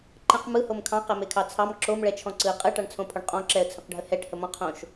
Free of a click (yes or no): no